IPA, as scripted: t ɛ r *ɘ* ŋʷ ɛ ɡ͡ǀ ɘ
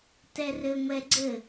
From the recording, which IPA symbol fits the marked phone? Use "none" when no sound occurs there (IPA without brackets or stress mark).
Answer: ɘ